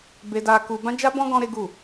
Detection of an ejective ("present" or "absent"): absent